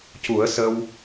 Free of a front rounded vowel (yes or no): yes